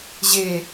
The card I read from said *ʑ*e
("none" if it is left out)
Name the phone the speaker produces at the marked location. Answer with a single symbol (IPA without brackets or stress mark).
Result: ʑ